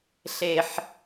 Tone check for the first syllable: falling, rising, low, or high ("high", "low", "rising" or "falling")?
high